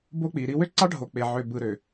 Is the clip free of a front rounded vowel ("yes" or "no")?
no